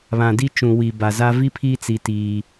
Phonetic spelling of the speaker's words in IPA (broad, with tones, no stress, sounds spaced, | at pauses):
β ã˨ d i˦ t͡ʃ ũ˨ w i˨ b a˨ z a˦ v i˦ pʰ i˦ t͡s i˦ t iː˦